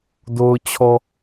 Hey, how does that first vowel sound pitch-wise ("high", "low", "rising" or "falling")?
low